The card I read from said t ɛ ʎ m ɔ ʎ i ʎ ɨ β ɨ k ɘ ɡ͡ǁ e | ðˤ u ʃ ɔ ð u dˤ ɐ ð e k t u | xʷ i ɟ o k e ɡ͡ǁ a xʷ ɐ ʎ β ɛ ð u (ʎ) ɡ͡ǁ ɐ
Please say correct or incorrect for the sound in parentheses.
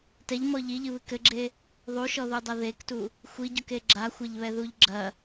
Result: correct